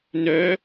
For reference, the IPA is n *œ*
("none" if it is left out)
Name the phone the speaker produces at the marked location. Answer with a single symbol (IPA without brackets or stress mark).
œ